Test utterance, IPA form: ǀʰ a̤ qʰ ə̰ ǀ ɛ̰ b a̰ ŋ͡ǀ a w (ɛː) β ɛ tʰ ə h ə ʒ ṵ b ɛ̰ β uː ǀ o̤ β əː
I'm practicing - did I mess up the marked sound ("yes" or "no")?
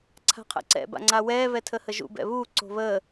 no